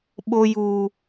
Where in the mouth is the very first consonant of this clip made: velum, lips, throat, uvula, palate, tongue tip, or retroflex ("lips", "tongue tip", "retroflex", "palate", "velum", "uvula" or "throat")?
lips